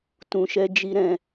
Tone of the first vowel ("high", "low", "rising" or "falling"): low